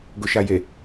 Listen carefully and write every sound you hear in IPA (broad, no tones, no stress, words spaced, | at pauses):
ɡʊʃaje